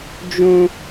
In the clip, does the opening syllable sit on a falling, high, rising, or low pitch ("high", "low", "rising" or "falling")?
high